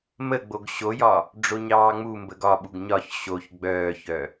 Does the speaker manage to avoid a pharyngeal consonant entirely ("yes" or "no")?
yes